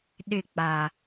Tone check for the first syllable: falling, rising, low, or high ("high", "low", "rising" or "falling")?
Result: falling